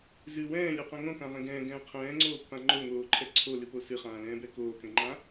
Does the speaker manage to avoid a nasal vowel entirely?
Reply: no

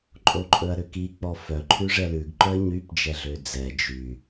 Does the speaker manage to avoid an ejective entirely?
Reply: no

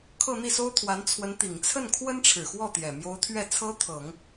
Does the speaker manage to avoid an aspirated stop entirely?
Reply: no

